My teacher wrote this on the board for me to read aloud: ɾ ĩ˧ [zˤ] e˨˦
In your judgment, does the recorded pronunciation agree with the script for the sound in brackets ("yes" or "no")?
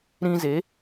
no